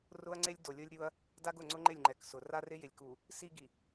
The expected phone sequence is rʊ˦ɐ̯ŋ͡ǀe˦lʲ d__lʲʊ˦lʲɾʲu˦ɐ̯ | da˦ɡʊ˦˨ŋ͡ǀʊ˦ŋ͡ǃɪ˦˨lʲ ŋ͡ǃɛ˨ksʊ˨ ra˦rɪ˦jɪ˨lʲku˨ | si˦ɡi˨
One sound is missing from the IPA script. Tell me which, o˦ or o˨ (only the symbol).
o˨